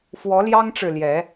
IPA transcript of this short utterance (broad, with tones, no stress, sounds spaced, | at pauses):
f w ɔ˨˦ l j ɑ˦ ŋ ʈ͡ʂ ɻ̩˨ l j ɛ˨˦